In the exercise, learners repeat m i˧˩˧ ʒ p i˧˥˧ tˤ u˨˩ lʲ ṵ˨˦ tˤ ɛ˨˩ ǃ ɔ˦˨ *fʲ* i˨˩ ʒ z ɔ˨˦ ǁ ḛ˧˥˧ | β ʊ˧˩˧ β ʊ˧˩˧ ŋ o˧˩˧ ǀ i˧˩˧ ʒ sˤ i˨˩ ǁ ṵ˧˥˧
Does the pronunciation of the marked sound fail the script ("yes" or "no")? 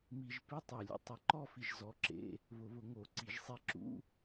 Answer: yes